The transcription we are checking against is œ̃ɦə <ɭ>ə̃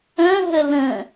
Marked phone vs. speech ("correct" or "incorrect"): incorrect